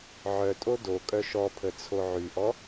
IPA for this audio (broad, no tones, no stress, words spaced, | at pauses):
ʕœtʼo dokʼœ ʃɔpʰə t͡sʰoʕyʔɔ